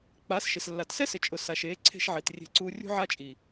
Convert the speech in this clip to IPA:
k͡pa˨˦sʃɪ˨s lːa˨tsɛ˦sɪ˨ t͡ʃʼʊ˨ sa˨ʃeː˨˦ǀʰe̤˧ʃ ʕi˨t rʲe̤˦ǀuː˦ rʲṳ˦ʕa˦t͡ʃʼi˨

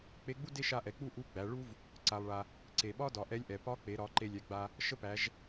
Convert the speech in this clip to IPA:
k͡pe˧˥ɡ͡bu˥ de˥ʃa˧˥ʔɛ˩˧ k͡pu˥ ʔu˧˥ɡ͡bæ˩˧ ɭu˥v | ǀa˩lˠɭa˩ | ǀe˩ɓɒ˥ dɒ˩˧ʔɛ˧˥lʲʔɛ˩ pɒ˧˥k͡pe˩˧ɾɒ˩˧ ǃe˧lʲɛ˩˧ɡ͡ba˧ | ʃə˥pæ˩˧ʒ

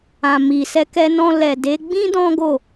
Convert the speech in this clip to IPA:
ã˨mi˨ sɛ˧kɛ˧nɔ̃˧ lɛ˨ de˨˦ ɡ͡bĩ˦ dɔ̃˦ɡo˦˨

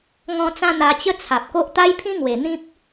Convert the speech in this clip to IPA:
ŋɔ̃˧t͡sã˧ n̪a˧t͡ɕə˦t͡sʰa˨p̚ko˦ʔ t̪a˦jpʰĩ˦ŋwe˨˩ n̪ĩ˦p̚

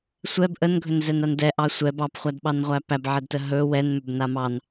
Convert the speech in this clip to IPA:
sʷɛb ʔənɡʱɵnzɛnan dɛʔɑ sʷɛ bɑpχʷadɓɑnʁʷæ pæbʕɛdtə ɦɵ wɛnmʏbna mɑn

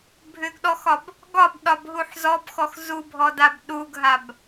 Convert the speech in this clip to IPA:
bʱʏɡɗɔxɒb | ɡɒbɗɒbɦuħ zɔbxɔx zubʱɔdab ɗuɡɦab

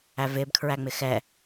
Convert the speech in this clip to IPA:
ævɪːb kʰɹæŋ͡mɪxɛ

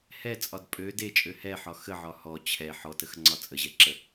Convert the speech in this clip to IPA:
hɛt͡sʼɒd pʼø det͡ʃʼø hɛħɒ xəʕɒ hɔ t͡ɕʰɛ ħɔtəxŋ͡ǀɒ t͡sʼəʑɛǁə

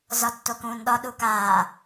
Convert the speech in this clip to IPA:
zɒtːokũːnɗɒ ɗukaː

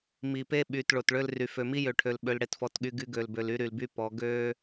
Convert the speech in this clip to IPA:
mi˨pe˦ ɓy˨t ɭo˨tɭø˦lry˨ fø˨mi˦jø˨ʈʰø˨l ɓø˦lɽe˦tfɔ˦tɠy˦ ɡy˦ɡø˨lbø˨l y˦ɾy˨lby˦ pɔ˨˦ ɡø˦

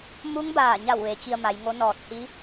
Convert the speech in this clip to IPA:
mu˧˥ŋbaː˧˩ɲa˧˩w ʋe˩˧t͡ɕi˧ə̯ma˩˧jŋo˧˥ nɔː˧˩t̚hi˧˥

